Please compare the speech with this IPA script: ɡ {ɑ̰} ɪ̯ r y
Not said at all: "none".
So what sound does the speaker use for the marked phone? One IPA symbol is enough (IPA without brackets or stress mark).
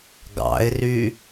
ɑ̰